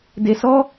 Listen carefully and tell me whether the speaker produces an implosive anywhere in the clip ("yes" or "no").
no